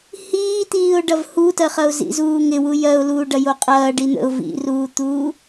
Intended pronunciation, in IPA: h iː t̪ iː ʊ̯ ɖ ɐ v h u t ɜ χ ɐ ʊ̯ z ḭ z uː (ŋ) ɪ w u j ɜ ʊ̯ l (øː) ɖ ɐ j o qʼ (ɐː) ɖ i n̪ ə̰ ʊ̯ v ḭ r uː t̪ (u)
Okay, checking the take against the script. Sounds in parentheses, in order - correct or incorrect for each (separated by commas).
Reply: correct, incorrect, correct, incorrect